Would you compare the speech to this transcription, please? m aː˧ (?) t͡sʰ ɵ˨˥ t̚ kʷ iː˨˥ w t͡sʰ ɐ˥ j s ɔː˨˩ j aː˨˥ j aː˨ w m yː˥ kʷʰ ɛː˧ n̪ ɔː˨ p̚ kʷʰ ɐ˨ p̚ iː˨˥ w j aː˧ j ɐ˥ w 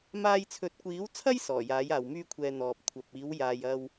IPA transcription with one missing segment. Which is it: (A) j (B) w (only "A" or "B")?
A